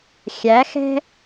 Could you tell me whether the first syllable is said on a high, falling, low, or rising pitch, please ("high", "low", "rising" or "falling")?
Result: rising